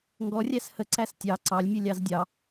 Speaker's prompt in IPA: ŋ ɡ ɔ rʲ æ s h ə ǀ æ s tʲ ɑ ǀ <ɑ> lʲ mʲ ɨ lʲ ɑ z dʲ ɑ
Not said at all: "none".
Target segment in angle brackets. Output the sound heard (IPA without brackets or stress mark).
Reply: ɑ